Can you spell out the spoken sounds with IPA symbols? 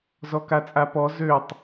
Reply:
z ɔ k a t͡sʼ a p ɔ z ø tˤ

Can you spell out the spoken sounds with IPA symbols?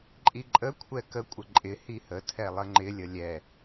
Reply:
ǃʼ i ǃʼ ə kʷʰ ɛ k ə kʷʼ ə ǃʼ ɪ h i h ə tʰ ɛ lˠ ə ŋ͡ǃ ɪ lʲ ə lʲ ɛ

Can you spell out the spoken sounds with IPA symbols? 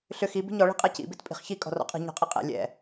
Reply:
ɬ ʏ x i b i̤ ɲ ɔ ɭ i̤ qʼ ɛ c ḭ b i t pʼ i̤ χ ç i kʼ ɔ̤ r ɔ̰ qʼ i̤ ɲ ɔ̤ qʼ i qʼ ɛ̰ lʲ ɛ̰

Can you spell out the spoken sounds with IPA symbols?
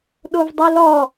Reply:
ɗ o v dˤ i l ɔ

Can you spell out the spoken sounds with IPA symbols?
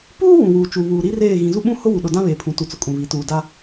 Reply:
p uː˦ w ũ˨ w uː˨ t͡ʃ u˨ β uː˨ ɾ i˦ r eː˦˨ ɣ ĩ˨ z u˦ ɓ ũ˦ h ʊ˦ w u˨ ɗ ʊ˨ d ã˦ β eː˨ pʰ ũ˨ t u˨ t͡s ʊ˨ kʼ ũ˨ β i˨ t uː˨ d a˦

